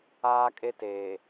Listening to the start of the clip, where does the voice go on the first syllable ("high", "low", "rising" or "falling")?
high